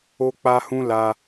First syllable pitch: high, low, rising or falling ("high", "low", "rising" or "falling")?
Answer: high